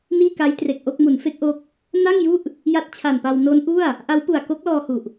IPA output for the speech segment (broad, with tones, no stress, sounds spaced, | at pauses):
n iː˥˩ k a˦˥ j t r e˨˩ k̚ ʔ o˥˩ k̚ m u˩˦ n f e˦˥ k̚ ʔ o˦˥ k̚ | n a˥˩ ŋ j u˥˩ ʔ | j a˦˥ t̚ t͡ɕʰ a˨˩ n p a˧ w n o˦˥ n ʔ u˥˩ a̯ | ʔ a˦˥ w p u˨˩ a̯ k o˦˥ k̚ l ɔː˧ h u˨˩ ʔ